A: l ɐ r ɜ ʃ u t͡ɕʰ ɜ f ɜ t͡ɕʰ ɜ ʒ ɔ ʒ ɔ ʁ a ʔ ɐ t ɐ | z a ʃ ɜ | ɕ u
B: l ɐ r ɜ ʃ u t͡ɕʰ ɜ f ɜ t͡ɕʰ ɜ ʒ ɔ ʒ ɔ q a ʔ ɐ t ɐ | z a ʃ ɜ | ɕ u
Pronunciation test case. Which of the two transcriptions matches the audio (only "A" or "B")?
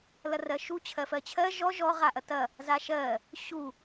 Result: A